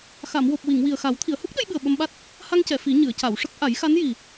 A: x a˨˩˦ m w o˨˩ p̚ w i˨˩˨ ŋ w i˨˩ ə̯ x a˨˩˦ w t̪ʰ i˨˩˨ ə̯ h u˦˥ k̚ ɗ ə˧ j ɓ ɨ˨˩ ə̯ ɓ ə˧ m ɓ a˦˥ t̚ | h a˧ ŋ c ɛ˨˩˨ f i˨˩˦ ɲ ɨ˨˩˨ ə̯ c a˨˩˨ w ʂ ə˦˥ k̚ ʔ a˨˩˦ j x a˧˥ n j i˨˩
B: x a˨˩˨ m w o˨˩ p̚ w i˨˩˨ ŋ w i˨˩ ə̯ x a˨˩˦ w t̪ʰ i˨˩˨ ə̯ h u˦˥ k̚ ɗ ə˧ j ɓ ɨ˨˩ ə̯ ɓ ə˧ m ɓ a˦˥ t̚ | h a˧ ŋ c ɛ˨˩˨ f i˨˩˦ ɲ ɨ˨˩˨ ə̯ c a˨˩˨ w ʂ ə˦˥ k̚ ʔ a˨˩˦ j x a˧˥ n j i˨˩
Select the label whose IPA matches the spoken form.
B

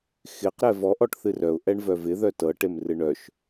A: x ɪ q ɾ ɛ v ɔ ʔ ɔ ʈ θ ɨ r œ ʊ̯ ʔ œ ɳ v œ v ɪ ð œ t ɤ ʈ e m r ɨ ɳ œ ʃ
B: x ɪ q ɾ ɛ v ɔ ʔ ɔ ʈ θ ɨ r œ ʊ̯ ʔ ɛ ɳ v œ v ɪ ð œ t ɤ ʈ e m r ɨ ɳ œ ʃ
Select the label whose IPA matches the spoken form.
B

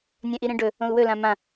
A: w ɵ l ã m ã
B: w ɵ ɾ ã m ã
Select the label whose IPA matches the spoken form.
A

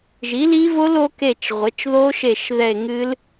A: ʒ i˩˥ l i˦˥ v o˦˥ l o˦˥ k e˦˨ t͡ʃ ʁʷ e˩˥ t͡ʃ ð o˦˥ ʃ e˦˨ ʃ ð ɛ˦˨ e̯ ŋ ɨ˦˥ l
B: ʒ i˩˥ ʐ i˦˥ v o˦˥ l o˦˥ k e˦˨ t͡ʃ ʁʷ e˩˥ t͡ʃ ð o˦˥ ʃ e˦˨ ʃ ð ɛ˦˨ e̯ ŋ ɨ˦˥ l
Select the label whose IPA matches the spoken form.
A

